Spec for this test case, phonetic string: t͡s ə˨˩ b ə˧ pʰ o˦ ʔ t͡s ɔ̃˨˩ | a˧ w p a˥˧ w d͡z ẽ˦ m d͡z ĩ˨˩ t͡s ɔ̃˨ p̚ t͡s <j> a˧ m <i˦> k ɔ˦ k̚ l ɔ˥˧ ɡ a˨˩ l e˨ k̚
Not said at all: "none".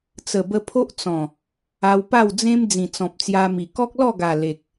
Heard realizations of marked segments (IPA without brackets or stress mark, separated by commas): j, i˨˩